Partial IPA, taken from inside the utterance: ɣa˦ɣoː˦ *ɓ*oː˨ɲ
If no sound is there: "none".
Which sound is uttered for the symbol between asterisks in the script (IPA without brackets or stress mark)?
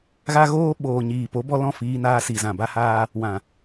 ɓ